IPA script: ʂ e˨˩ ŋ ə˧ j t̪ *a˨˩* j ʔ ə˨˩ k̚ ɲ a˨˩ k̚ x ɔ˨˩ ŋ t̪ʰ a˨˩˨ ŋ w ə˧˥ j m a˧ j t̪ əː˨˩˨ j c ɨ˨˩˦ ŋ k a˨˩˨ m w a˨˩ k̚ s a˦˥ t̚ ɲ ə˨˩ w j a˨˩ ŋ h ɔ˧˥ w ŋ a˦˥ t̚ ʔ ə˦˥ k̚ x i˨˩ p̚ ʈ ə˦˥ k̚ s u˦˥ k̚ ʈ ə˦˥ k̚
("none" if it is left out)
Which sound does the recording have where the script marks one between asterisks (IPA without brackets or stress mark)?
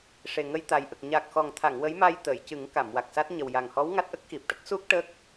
a˨˩